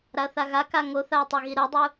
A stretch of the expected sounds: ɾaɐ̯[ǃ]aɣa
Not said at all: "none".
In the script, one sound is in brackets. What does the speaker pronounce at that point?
θ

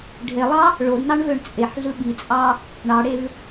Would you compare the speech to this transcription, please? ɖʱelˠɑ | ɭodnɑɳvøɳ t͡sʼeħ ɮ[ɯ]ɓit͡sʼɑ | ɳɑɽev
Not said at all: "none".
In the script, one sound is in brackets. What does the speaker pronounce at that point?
ɯ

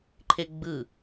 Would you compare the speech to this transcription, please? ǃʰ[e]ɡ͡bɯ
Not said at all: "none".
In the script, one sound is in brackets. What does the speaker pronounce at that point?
e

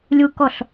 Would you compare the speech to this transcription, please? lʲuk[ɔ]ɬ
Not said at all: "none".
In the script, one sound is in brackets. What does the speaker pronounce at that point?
ɔ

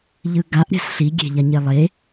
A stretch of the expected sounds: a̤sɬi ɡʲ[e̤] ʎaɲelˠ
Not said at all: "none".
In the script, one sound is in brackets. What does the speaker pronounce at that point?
e̤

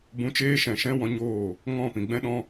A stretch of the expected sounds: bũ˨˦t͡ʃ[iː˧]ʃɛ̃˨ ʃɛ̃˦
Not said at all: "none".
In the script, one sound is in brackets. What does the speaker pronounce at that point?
eː˧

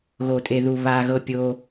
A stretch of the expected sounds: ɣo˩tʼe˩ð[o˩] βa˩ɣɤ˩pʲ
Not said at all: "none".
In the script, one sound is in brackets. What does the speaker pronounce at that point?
u˩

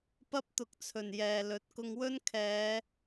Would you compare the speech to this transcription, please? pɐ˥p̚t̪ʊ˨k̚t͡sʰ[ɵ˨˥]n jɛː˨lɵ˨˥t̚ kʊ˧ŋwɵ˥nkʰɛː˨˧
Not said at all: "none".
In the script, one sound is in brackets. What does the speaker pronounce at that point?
ɵ˨˩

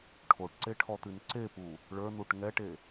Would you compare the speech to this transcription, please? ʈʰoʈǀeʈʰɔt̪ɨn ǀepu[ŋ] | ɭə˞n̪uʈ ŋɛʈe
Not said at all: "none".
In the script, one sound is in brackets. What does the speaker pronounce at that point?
none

